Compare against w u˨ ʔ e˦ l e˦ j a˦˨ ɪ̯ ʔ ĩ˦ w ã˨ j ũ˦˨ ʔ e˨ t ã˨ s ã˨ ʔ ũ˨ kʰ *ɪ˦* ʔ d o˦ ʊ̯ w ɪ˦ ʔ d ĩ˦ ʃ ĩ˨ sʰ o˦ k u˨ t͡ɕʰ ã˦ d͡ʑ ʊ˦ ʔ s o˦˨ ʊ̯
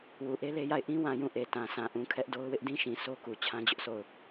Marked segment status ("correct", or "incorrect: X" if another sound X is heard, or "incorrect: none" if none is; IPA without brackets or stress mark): incorrect: ɛ˦